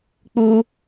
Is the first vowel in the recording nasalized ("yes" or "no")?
no